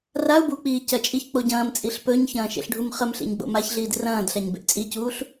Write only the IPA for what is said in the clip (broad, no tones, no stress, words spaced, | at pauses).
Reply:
rau̯ buk͡piː cɐt͡ʃʼiç k͡poɟɐ̃ːmt͡sʼiɬ pɵɲçɐ̃ː ʃḛɬɖʱumχəmɬḛɲ ɡ͡bo̰maçɮiːd rɐ̃ːdɬaɲ bḛʔt͡sʼicuːɬ